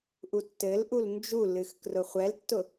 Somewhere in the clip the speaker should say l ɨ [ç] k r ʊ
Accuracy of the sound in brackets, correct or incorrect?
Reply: incorrect